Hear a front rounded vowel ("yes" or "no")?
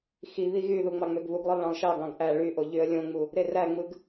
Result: yes